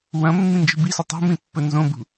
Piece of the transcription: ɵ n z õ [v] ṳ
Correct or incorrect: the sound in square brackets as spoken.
incorrect: b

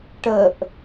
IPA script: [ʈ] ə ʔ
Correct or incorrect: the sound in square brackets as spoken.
correct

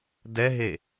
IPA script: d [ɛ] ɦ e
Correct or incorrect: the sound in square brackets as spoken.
correct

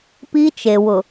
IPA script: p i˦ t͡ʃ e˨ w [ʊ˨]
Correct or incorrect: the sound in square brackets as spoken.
correct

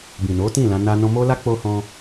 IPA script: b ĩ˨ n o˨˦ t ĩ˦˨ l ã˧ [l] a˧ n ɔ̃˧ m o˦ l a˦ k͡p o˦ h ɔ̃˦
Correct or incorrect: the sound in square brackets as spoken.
incorrect: n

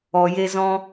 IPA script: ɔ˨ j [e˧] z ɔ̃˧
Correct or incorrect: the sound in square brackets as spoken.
correct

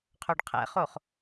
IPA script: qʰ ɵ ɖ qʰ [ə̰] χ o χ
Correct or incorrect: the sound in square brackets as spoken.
incorrect: ɛ̰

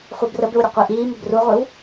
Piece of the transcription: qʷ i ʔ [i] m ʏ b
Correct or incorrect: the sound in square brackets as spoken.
incorrect: iː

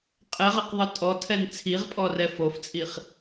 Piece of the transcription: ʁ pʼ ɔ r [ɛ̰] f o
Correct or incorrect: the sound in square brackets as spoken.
incorrect: ɛ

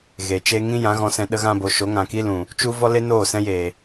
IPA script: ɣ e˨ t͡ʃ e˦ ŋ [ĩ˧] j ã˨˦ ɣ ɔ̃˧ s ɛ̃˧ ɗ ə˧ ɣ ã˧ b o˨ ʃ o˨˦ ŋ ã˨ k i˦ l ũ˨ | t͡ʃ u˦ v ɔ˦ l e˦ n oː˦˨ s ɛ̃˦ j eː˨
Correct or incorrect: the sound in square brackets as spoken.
incorrect: ĩ˦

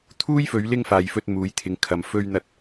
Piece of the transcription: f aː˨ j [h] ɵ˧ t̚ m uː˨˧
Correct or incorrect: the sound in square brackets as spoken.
incorrect: f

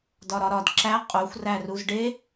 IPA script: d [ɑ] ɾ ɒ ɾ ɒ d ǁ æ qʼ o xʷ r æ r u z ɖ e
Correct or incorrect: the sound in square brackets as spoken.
incorrect: ɒ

